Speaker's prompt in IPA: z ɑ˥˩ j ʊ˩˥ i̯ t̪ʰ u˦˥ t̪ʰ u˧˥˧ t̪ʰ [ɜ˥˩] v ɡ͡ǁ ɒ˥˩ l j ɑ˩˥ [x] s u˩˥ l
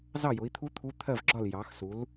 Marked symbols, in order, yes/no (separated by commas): yes, yes